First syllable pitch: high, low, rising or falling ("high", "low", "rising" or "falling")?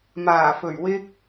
low